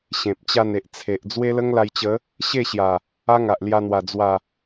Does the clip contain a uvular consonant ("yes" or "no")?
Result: no